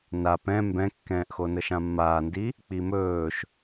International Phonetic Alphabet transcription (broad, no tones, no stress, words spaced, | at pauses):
na pɛ̃ mbɛ̃kːɛ̃ːʔxo nəʃãmːaːndi | k͡pimɵːʃ